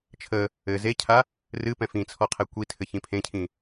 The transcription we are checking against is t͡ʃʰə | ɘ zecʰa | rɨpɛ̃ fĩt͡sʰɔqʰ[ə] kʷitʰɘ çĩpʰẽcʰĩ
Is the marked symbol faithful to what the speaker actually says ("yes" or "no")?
no